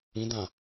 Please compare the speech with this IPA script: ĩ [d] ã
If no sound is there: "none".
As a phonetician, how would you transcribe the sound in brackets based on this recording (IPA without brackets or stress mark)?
d